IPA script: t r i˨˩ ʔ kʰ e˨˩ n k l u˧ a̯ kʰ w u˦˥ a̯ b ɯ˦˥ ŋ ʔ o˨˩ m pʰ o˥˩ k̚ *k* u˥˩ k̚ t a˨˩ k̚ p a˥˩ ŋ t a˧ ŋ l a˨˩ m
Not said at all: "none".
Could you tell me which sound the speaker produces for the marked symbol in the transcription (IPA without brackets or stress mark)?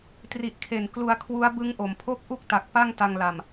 ʔ